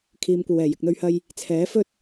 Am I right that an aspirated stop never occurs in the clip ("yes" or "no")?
no